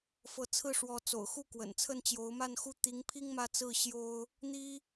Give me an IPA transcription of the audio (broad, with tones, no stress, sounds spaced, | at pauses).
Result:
f ɤ˧˥ t͡sʰ ɹ̩˥˩ ʂ w ɔ˧˥ t͡s o̰˨˩ ʊ̯ x u˥˩ k w ə̰˨˩ n t͡sʰ ə˥˩ n t͡ɕ j o˧˥ ʊ̯ m a˥˧ n x u˥˩ t̪ i˧˥ ŋ pʰ i˥ ŋ m ä˥˧ t͡s ɹ̩˥˩ ɕ j o˥ ʊ̯ | n̪ i˥